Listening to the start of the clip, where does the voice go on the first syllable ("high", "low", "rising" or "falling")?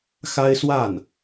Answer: high